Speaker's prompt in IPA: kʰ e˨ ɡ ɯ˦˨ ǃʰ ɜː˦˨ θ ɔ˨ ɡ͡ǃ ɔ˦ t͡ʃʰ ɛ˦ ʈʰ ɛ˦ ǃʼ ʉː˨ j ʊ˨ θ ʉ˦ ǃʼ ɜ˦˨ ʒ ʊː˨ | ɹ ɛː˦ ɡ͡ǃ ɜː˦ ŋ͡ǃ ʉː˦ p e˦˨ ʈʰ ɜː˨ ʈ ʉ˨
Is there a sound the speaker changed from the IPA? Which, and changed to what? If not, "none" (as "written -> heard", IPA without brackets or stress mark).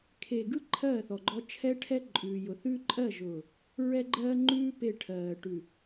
ɛː˦ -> ɛ˦